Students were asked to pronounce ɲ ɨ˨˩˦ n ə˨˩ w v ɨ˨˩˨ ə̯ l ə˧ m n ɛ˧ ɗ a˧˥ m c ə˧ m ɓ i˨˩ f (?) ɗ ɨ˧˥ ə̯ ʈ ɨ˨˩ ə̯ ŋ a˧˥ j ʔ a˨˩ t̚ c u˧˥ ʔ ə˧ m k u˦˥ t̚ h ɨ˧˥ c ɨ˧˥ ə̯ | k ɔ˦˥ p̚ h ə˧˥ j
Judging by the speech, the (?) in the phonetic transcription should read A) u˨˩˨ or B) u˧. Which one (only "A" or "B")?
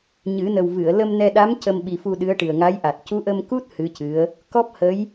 B